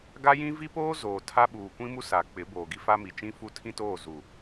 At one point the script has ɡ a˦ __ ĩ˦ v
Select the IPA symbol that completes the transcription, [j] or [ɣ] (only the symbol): j